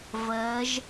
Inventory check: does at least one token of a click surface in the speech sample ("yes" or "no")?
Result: no